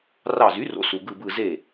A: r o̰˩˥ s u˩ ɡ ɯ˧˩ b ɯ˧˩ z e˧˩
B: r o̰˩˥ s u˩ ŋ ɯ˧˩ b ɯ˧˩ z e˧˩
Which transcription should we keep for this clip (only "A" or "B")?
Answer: A